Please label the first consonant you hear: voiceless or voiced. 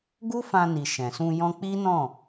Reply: voiced